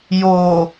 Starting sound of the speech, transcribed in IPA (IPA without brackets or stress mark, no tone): j